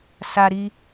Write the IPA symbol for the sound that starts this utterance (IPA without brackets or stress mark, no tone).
s